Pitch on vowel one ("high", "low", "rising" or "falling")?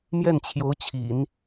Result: falling